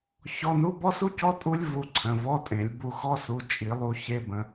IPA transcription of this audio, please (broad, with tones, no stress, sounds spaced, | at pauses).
ç ɔ˧˥˧ n u˧˥˧ b ɔ˥ s u˥ c ɔ˧˥˧ tʼ u˥ lʲ v u˧ ǀʰ ə̃˩˧˩ v ɔ˧˥˧ tʼ ẽ˨˩˦ lʲ b u˧ x ɔ˧˥˧ s u˩˧˩ t͡ʃʼ i˨˩˦ lˠ u˧ ç e˧˥˧ b ə̃˧